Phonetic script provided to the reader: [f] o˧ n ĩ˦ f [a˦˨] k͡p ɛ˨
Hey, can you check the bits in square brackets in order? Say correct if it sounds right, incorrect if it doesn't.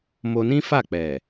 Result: incorrect, correct

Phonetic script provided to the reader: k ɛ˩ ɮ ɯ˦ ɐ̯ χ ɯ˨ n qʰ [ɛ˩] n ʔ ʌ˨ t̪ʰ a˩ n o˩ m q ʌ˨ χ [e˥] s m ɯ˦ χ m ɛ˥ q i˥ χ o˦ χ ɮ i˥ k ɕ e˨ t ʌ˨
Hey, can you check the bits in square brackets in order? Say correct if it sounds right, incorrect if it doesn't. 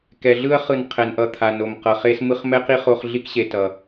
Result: correct, correct

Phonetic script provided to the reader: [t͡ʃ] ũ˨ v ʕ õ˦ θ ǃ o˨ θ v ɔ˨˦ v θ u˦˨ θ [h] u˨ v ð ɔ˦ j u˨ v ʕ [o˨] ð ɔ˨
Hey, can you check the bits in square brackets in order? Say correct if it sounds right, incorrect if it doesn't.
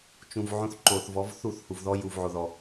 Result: correct, correct, correct

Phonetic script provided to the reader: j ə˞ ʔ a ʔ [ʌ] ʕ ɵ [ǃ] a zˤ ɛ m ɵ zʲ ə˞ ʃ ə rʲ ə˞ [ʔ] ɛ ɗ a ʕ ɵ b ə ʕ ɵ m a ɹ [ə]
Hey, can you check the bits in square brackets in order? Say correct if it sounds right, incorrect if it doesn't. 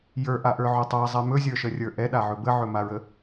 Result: incorrect, incorrect, correct, correct

